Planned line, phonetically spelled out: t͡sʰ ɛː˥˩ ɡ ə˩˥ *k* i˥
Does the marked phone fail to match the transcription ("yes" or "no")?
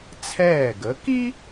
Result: no